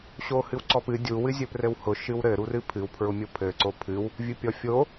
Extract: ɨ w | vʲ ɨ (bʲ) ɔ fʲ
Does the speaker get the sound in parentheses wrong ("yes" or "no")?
yes